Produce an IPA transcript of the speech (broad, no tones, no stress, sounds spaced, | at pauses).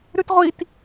ɾ ʉ t ʁʷ i t